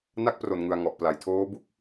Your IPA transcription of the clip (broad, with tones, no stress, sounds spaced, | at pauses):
n a˦˥ k̚ p r o˨˩ n ŋ ɯ˨˩ a̯ ŋ ɔ˨˩ ʔ p l a˨˩ j tʰ oː˦˥ b u˦˥ k̚